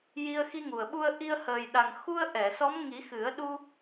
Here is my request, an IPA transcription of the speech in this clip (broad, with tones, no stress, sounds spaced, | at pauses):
j i˧ ə̯ x i˧ ŋ u˨˩ ə̯ ɓ u˧ ə̯ ʔ i˧ ə̯ h əː˨˩ j ɗ a˨˩ ŋ x u˧ ə̯ ʔ ɛ˨˩˨ s ɔ˧˥ m ŋ i˨˩˦ x ɨ˨˩˦ ə̯ ɗ u˧